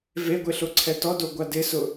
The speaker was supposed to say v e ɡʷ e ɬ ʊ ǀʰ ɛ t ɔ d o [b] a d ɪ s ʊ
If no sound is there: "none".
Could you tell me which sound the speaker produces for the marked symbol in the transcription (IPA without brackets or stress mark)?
ɡʷ